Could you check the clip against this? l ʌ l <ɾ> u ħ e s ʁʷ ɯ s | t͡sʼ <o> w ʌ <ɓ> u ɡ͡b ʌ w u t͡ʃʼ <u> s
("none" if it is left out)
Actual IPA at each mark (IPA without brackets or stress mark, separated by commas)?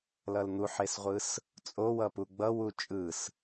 n̪, o, p, ɯ